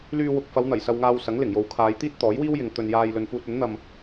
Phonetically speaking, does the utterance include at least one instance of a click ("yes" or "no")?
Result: no